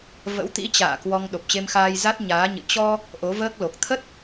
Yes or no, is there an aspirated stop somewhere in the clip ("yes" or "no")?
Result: yes